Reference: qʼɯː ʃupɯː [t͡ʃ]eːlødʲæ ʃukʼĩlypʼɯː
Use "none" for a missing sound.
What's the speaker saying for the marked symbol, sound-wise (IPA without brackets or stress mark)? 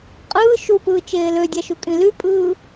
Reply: t͡ʃ